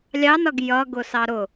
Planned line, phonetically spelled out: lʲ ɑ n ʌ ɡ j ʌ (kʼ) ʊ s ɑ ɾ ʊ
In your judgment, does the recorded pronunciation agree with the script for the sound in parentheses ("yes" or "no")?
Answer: no